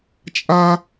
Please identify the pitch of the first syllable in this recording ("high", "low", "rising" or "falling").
high